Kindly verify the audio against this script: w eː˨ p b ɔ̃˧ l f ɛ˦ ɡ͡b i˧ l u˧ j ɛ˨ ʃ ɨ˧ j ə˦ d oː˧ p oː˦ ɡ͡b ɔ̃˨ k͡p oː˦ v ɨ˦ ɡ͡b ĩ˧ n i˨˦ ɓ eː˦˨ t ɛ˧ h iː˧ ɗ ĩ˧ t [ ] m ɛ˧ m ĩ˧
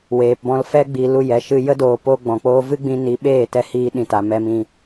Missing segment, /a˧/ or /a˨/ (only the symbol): a˨